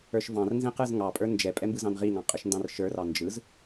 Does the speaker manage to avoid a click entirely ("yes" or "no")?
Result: yes